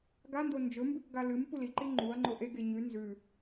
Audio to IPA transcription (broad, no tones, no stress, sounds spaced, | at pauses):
ɡ a n d o n d͡ʒ ɵ m b ʉ k ɡ a l ɨ m p u l i ǃ i ŋ͡ǃ u ɐ̯ ŋ͡ǃ o ʔ e ɡ e ɲ ʉ n z ʉ